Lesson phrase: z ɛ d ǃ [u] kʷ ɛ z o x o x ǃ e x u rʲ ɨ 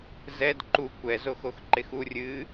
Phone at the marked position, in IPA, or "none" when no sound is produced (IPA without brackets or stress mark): u